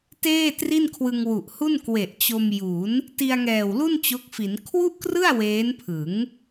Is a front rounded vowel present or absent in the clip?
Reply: absent